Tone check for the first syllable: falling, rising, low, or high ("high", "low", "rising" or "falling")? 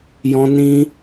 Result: high